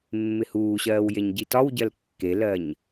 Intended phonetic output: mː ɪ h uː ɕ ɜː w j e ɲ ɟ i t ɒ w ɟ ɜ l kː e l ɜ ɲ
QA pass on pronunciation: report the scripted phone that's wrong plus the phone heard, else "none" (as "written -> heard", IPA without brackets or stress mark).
none